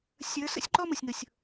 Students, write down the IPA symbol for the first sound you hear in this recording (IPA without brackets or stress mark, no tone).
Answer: sʲ